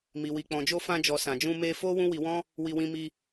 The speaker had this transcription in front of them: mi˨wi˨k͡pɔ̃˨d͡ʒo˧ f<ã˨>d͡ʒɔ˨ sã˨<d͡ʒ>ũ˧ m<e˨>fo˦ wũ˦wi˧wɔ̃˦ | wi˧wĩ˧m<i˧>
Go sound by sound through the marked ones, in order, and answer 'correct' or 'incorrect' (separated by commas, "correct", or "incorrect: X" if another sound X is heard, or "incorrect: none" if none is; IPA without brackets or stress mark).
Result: incorrect: ã˧, correct, incorrect: e˧, correct